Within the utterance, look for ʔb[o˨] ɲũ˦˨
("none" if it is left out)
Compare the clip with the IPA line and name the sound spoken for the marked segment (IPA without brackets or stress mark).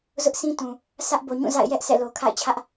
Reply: o˨